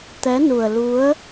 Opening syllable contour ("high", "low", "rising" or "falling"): rising